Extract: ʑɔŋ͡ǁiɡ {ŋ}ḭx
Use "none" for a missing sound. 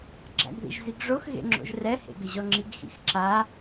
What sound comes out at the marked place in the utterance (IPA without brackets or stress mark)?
x